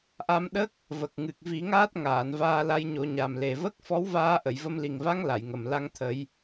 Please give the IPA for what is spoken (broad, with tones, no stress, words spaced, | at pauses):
ʔa˧mɗə˦˥k̚ | və˨˩k̚ŋɨ˨˩k̚ vi˨˩˦ŋaː˦˥t̚ ŋaː˨˩˨nvaː˧la˧˥j ɲo˨˩˦ɲa˨˩m le˨˩və˦˥k̚ fɔ˧˥wvaː˧ʔə˨˩˨jvə˧m li˨˩ŋva˧˥ŋ la˨˩˨jŋə˨˩m la˧ŋt̪ʰə˨˩˦j